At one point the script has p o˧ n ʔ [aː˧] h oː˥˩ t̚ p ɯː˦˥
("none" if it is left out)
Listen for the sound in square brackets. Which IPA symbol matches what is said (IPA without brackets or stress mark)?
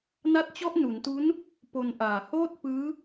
aː˨˩